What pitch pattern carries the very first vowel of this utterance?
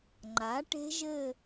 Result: rising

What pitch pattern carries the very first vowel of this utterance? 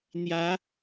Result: rising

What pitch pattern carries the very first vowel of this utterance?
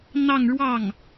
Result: falling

